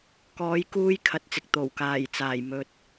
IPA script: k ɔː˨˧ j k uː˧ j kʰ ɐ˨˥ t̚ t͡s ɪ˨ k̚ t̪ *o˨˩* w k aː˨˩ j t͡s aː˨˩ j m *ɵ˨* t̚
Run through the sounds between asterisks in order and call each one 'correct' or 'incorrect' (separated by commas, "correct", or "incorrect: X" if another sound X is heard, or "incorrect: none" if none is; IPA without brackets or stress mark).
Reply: correct, correct